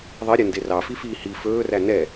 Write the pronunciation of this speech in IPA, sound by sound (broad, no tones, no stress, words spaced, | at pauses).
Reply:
ðˤiɾʲɛ nderɑfifiː hi fɵːræ nɛ